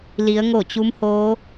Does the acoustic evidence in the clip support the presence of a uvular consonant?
no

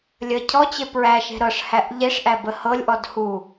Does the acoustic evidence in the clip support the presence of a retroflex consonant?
yes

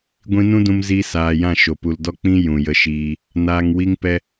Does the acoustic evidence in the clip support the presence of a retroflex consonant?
no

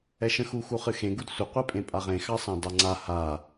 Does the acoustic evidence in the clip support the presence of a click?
yes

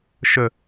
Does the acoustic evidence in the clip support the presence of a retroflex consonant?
no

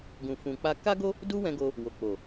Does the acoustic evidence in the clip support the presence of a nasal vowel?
yes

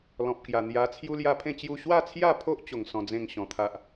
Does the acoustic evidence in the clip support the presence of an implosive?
no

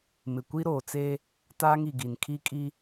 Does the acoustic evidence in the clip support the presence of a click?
no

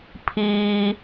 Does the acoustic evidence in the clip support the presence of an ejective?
no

